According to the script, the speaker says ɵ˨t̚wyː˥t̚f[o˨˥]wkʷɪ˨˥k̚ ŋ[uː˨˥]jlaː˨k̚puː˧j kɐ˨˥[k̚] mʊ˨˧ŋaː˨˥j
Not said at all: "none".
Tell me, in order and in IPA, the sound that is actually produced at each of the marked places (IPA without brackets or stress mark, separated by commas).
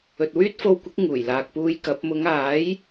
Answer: o˧, uː˨˩, p̚